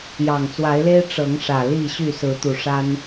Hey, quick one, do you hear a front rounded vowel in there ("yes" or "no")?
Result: yes